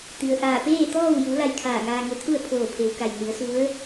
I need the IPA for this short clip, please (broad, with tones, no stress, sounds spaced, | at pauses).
t̪ i˩ ə̯ ʔ aː˧˩ p eː˥˨ t̪ ɔː˥˨ w j u˩˧ l a˧ j kʰ aː˧˩ ŋ aː˧ ŋ e˧ t̪ʰ u˥˨ ə̯ pʰ oː˧˩ pʰ e˩˧ w k a˩ j n i˩˧ ə̯ s u˧˥ ə̯